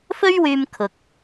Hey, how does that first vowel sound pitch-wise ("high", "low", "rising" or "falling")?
high